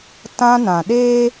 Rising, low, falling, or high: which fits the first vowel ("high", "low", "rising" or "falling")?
high